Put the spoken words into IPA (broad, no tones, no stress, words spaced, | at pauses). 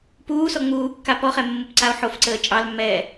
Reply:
puːsɔ ŋ͡muːkːa pɔχɛmːupǀao̯ ħofǀəː t͡ʃʼɑlmːɛː